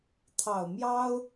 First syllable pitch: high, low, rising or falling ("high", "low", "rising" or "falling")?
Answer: low